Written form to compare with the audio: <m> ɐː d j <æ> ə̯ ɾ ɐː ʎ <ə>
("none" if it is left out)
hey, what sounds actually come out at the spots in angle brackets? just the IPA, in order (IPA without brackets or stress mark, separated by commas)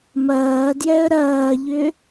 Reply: m, ɛ, ʏ